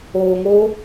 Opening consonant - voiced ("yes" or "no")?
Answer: yes